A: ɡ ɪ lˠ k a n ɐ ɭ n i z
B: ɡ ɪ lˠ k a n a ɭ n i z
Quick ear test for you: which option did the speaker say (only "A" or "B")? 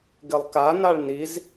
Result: B